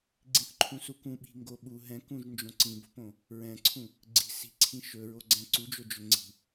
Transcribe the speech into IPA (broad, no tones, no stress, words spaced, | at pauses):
ɡ͡ǀĩθǃʰũsukũ ɓi̤ŋɡoɓu ɦɛ̃kũʒ nd͡ʒõǀĩbo̤põ | ɹɛ̃ǀʰũ | ɡ͡ǀi̤ si̤ǀʰĩ ʃɵɹo ɡ͡ǀɛ̃ǀud͡ʒo d͡ʒɵŋ͡ǀi̤